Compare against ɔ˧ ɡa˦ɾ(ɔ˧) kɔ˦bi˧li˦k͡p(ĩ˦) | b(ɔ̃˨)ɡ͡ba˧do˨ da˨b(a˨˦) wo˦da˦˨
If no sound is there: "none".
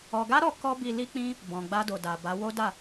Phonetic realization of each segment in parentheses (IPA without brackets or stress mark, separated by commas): ɔ˧, ĩ˦, ɔ̃˨, a˨˦